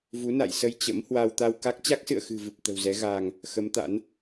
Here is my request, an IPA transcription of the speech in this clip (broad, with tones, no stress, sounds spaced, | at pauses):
v u˨˦ n a̰˧˨ j s ə˧ j t͡ɕ ə̰˧˥ m h w a˧ w t̪ a˧ w k a˦˥ k̚ t͡ɕ a˦˥ k̚ s ɨ̰˧˨ ə̯ x ɨ̤˨˩ v ɨ˨˩ p̚ t̪ ə̤˨˩ w z ɛ˨˦ ɣ aː˧ ŋ | x ə˨˦ m t̪ a̰˧˥ n